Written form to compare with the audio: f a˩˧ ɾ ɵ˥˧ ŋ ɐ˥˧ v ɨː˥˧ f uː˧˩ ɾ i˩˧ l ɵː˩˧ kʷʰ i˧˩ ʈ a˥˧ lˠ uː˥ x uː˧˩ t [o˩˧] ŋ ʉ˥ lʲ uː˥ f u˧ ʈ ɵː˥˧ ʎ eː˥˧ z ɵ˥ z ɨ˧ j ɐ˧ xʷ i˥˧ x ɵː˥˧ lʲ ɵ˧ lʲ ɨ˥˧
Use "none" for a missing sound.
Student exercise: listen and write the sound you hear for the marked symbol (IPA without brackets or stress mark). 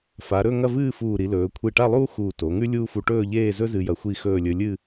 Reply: o˩˧